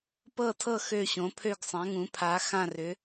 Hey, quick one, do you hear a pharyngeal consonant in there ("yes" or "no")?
no